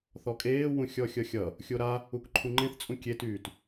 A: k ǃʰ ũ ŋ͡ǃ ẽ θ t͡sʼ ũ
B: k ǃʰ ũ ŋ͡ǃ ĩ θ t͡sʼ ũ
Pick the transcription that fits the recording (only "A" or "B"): A